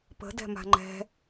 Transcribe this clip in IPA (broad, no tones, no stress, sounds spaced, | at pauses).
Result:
p ə̤ d ɛ̤ m a̤ ŋ͡ǃ ɛ̤